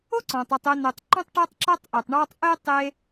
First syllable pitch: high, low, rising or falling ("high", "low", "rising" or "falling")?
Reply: high